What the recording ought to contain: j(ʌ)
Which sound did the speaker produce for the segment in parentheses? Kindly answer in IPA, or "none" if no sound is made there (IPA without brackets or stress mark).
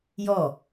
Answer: ɔ